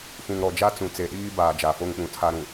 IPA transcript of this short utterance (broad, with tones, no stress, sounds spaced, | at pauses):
f ũ˨ ŋ ɾ ɔ˨ d͡ʒ a˦ t͡s ũ˨ t͡s e˨ ɗ iː˦ b aː˨ d͡ʒ a˨ f o˦ ŋ k͡p ũ˨ tʰ a˦ ɾ ũ˨